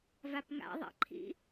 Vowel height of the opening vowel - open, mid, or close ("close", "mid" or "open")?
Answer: open